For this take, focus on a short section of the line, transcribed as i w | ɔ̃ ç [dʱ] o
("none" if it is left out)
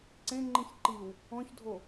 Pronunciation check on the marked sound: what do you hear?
dʱ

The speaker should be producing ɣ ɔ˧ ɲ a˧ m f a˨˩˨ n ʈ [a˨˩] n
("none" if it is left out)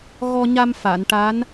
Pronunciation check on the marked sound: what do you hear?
a˧˥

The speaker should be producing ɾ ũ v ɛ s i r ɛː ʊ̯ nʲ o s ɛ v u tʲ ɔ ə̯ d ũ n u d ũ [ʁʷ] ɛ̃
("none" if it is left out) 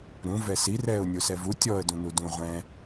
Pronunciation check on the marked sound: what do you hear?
ʁʷ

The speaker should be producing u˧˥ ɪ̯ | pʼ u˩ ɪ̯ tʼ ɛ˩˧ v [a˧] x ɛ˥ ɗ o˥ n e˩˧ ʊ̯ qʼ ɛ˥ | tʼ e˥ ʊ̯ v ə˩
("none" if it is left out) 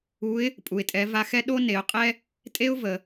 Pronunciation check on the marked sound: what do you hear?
a˧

